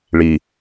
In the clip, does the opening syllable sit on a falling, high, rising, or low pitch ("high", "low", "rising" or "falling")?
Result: low